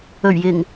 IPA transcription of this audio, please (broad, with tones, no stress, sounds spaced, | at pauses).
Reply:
ɵ˨˩ ɥ j ɪ˨˩ ŋ